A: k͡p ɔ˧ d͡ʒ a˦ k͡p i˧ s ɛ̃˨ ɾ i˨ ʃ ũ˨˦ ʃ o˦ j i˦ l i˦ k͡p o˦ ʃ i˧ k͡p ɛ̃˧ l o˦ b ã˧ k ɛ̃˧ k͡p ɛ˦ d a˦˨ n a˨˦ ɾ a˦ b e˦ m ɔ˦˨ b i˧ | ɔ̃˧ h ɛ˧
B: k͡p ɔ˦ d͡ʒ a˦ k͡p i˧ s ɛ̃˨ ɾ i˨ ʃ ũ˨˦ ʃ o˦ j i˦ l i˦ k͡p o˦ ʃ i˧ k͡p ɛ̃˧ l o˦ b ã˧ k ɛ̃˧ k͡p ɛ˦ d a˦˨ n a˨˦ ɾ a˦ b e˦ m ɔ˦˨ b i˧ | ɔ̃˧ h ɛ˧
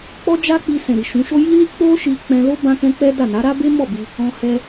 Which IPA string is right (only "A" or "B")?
B